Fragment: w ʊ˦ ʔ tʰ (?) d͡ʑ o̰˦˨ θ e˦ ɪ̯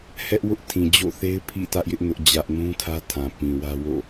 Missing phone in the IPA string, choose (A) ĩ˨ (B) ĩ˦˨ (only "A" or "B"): A